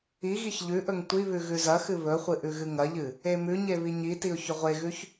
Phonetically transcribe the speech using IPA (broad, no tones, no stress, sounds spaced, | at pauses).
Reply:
i ɣ i ç ʎ ʉ ʔ ɵ ŋ tʷ i β ʉ ɣ ʉ z ɐ x ɨ β ɵ χʷ ɨ ʔ ʉ ɣ ɨ ŋ ɐ ʎ ɨ | e m ʉ ɲ e β i ɲ i t i ʊ̯ ç ɵ ʁʷ e ɣ ʉ ç